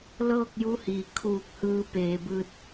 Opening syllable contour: falling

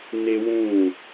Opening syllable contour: high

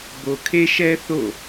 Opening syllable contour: low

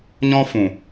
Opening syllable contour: high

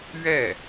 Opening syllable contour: falling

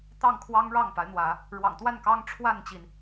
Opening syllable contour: falling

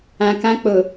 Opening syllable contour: low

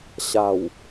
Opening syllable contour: low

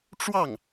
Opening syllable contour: falling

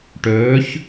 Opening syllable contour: rising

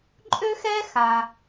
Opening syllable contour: high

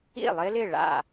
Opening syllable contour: falling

